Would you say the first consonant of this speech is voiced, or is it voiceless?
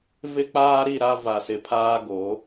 voiced